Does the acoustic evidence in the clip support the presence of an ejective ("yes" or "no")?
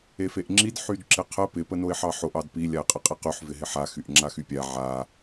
yes